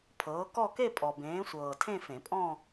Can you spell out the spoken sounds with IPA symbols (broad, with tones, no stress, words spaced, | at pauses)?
pʰɤː˨˦kɔ˥˧ke˥˧ pʼɔ˨bẽː˨˦sʷɤː˨ tʰẽ˥˧fẽ˨˩˦pʼɔ̃˥˧